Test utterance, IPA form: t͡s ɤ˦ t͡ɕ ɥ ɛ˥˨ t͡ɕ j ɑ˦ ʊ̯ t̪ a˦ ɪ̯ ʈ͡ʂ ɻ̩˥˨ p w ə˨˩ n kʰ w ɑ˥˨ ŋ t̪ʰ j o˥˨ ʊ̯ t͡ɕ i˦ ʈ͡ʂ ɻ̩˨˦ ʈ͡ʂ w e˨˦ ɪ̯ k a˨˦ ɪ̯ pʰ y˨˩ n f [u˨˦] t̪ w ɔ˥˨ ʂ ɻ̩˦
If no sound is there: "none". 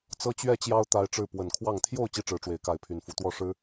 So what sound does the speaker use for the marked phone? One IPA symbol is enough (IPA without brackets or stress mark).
u˨˦